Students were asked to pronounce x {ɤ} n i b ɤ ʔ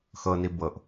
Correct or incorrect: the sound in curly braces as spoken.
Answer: correct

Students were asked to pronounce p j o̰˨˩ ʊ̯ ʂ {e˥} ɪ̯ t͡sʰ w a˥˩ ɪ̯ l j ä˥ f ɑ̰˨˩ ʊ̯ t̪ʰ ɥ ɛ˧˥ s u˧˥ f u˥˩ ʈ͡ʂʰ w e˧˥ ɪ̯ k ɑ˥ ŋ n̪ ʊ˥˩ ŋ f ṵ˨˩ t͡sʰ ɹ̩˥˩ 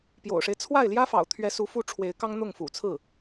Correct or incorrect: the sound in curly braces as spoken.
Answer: incorrect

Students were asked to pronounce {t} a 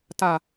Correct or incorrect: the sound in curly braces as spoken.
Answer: correct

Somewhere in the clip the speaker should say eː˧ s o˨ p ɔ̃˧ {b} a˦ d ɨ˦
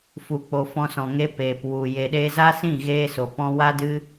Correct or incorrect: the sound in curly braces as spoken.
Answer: incorrect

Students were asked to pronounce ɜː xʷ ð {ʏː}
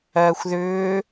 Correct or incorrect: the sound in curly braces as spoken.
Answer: correct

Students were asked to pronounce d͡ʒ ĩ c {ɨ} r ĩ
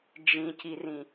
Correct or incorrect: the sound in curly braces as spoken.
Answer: incorrect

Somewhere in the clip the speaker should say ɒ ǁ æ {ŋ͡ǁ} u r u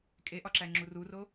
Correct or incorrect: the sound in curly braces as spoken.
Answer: correct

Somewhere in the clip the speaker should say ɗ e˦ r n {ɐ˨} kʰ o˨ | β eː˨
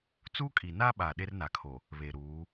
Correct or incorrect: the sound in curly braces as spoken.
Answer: incorrect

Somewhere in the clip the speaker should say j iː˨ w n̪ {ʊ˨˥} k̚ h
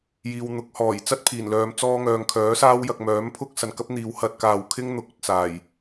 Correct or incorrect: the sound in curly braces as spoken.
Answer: correct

